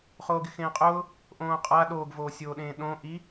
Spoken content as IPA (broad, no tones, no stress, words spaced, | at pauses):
χoːɡɪxẽːqʼʊː | ʔõːqʼa ɗoːɡvoːsʲoːɗẽː ɗõ ʔi